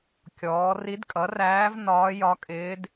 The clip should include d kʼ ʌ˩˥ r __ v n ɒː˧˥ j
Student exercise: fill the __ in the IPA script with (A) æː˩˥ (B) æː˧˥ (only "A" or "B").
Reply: B